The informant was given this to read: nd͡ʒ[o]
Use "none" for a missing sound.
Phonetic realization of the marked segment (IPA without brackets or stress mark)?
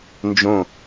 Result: õ